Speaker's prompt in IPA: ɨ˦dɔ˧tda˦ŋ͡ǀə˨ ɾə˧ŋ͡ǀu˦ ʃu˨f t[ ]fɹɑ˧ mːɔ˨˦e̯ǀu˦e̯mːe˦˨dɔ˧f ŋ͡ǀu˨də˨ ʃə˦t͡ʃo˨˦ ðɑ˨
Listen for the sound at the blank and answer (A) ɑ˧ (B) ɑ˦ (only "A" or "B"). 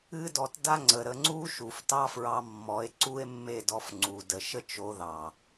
B